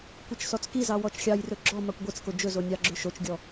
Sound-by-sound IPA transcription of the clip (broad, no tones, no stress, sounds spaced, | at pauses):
kʷ ɛ t͡ʃ s ɔ t͡s k i z ɑ w ɔ t͡ʃ xʲ ɑ j r ɵ ɡ͡ǁ ɔ m ɑ kʷ ɡʷ e t͡s k o d͡ʒ ɵ z o nʲ ɑ ɡ͡ǁ ʏ ʃ o t͡ʃ ɡʲ ɔ